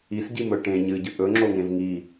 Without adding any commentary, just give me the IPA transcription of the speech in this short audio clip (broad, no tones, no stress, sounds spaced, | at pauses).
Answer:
i s ɟ i m ɵ ʈ ẽ ɲ ɨ ɟ ɨ ʔ ɵ ŋ͡ǁ o ŋ ẽ v ŋ i